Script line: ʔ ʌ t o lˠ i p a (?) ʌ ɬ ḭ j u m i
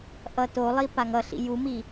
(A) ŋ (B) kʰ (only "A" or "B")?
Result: A